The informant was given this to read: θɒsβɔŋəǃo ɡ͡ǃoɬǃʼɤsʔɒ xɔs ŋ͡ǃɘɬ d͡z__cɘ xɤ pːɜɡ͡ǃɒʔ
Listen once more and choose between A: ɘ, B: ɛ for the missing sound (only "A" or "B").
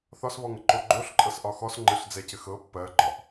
B